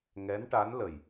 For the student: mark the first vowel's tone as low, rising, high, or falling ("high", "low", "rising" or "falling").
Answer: rising